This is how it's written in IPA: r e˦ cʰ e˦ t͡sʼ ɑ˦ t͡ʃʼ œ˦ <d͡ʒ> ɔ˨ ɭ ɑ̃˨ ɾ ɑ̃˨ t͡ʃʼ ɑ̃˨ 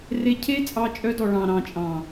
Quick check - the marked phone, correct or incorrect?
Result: incorrect